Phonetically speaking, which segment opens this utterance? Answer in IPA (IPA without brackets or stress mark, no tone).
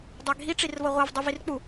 dˤ